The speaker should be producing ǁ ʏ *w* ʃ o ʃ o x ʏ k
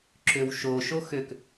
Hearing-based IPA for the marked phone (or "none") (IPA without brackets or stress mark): w